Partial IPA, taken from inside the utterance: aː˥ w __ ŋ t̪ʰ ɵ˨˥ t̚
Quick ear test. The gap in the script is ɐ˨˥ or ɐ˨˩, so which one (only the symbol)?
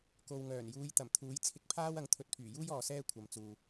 ɐ˨˥